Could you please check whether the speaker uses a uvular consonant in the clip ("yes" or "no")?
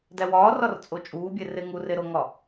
no